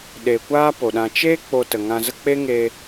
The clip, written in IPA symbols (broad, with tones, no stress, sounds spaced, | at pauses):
ɗ e˨ kʷ aː˦ p o˨ ɗ ã˧ t͡ʃ eː˦ k͡p o˧ t ə˨ ŋ ã˧ z ə˦ k͡p e˦ ŋ eː˧